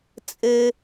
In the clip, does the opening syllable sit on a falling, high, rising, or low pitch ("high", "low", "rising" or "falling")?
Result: high